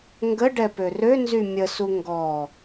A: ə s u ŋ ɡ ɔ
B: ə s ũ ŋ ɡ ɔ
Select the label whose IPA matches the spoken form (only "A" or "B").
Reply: A